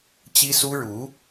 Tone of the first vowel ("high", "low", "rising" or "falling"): high